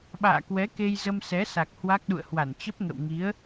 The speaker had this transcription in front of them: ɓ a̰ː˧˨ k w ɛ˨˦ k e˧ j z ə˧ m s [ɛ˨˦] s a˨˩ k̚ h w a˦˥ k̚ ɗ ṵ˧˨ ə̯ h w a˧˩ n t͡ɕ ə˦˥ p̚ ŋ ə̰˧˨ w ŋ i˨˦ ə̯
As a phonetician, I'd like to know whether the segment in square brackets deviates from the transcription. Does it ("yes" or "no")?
no